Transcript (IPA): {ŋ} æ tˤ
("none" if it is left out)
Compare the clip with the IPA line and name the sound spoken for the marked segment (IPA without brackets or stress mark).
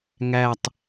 ŋ